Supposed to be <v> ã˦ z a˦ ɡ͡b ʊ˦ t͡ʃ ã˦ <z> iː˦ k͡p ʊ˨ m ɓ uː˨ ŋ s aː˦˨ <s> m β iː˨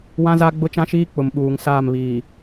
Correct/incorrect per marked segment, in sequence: incorrect, incorrect, incorrect

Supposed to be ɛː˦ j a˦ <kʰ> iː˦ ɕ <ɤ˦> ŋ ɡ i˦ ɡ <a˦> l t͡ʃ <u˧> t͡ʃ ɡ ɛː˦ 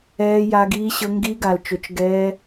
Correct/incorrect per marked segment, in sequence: incorrect, correct, incorrect, incorrect

